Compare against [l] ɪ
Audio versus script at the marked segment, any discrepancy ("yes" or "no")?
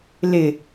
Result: no